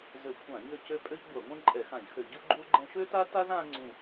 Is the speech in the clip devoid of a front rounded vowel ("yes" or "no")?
no